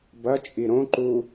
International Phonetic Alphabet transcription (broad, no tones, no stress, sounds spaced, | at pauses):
b ɐ t͡ʃʼ i ɾ õ ǃ u